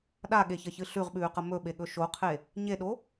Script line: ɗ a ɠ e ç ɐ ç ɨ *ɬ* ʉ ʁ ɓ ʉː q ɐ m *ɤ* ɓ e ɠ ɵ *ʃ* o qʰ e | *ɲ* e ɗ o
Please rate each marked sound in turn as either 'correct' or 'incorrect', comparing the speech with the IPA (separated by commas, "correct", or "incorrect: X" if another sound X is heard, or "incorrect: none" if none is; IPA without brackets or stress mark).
correct, incorrect: ɵ, correct, correct